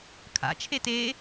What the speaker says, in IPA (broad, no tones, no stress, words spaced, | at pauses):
kʰa̰ t͡ʃʰete